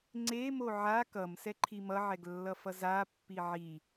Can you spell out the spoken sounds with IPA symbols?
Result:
ŋ͡ǀ e m o ʕ a k ʌ m s ɛ ǃʰ i m ʌ ʕ ɛ ɡ lː ʌ f ʌ z a pː i ʕ i

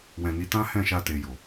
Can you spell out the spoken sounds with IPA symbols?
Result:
w ɛ̃˨ n i˨˦ t ã˦ h ɛ̃˦˨ ʃ a˧ t e˨ j o˨

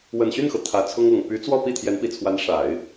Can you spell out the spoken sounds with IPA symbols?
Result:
w ə˨˩ n ɕ y˥˩ n x ɤ˩ t̪ʰ ä˨˩ t͡sʰ ʊ˥ ŋ ɤ˨˩ ŋ p y˧˥ t͡s w ɔ˥˧ p i˥˩ t̪ʰ j ɛ˧˥ n p i˨˩ t͡sʰ w a˧˥ n ʂ a˨˩˦ ɪ̯

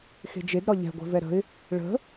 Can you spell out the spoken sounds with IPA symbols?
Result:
x e̤ d͡ʒ e d ɾ ɒ ʎ ɛ̤ ɡʷ ɛ̤ v ɛ ɾ ə̤ ɪ̯ | ɭ ə̤

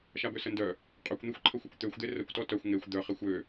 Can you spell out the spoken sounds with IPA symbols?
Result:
ʃ a b ø s ə n d œ | qʼ ø kʷ n̪ e xʷ ǃʰ ə xʷ œ kʷ t̪ ø xʷ d̪ e r ə kʷ t ɔ t œ xʷ ŋ e xʷ d̪ œ χ e xʷ ø

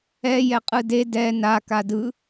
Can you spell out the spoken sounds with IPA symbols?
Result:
ɛ j ɛ qʼ ɯ d e d ɛ n a k a d ɯ

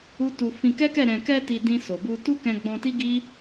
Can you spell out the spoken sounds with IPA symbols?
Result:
u˦ t u˧ f ĩ˧ k ɛ˦ k ɛ˦˨ ɾ ɛ̃˨ k ɛ˧ t i˧ d ĩ˧ s o˨ b u˧ t u˦ k ɛ̃˧ ɡ͡b ɔ̃˧ t i˦ ɡ i˦

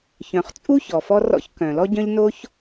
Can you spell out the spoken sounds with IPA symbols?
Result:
ç œ̃˩ χ t͡sʼ u˥ ç ɔ˩ f ɔ˥ r ɔ̰˥ ç k œ̃˩ l ɔ˥ ɟ œ̃˥ ʎ n o˥ ç

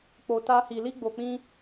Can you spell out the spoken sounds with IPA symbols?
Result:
k͡p o˧ t a˦ h i˧ l i˦ ɡ͡b o˧ k͡p ĩ˦

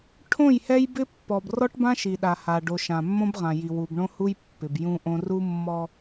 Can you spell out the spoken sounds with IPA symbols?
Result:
ʈʰ õ˦˨ j h ɛ˦ j b ɪ˦ pː ɔ˨ b r ɔ˦ ʈ b ã˦ ʃ i˨ ɗ a˨ h a˨ ɖ o˨ ʃ ã˨ mː õ˦ b ʁ ã˨ j i˨ w u˨ b ɳ õ˦ h u˦ j pː ɪ˨ b j ũ˦ ʔ õ˦ r u˦ mː ɔ˦

